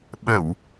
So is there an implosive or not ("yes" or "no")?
yes